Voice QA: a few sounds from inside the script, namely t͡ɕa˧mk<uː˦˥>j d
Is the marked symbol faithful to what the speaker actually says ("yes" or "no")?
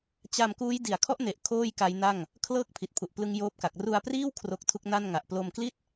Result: yes